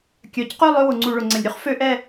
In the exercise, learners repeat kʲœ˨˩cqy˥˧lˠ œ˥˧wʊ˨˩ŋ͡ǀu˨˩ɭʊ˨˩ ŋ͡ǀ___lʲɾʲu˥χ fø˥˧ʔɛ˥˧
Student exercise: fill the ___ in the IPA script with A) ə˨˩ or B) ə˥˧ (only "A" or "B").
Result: A